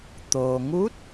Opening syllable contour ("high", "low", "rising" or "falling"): low